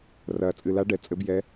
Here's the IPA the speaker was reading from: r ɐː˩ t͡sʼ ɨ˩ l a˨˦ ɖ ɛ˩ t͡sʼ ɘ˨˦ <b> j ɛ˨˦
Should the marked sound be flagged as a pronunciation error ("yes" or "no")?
no